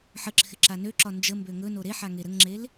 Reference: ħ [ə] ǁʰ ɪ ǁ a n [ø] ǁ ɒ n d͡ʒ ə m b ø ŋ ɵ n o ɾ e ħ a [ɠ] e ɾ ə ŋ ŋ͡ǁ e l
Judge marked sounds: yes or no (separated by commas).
yes, yes, no